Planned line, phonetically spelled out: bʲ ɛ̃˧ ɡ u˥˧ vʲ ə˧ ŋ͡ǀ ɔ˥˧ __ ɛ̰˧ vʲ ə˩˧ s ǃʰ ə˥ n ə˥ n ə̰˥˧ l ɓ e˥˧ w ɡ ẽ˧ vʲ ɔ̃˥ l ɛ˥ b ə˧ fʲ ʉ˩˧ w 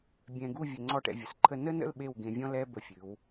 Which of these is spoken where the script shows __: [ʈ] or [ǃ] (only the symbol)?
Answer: ʈ